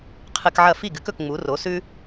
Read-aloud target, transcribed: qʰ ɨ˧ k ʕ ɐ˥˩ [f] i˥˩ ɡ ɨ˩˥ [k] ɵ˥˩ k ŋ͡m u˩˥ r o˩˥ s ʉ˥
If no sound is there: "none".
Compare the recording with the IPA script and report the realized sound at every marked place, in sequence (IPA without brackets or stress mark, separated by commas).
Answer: f, k